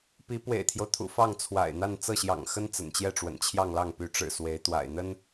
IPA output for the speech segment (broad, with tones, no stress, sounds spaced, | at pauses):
p i˧˥ p w ḛ˨˩ ɪ̯ t̪ʰ j o˦ ʊ̯ t̪ʰ ṵ˨˩ f ɑ˥˩ ŋ t͡sʰ w a̰˨˩ ɪ̯ n̪ a˥˧ n t͡s ɤ˥˩ ɕ j ɑ̰˨˩ ŋ x ə˥ n t͡s ə̰˨˩ n t͡ɕ j ɛ˥˩ ʈ͡ʂ w ə̰˨˩ n t͡ɕʰ j ɑ˥˧ ŋ l ɑ˥˩ ŋ p y˧˥ ʈ͡ʂ ɻ̩˨˩ s w e˧˥ ɪ̯ t̪ w a̰˨˩ ɪ̯ n̪ ə˥ n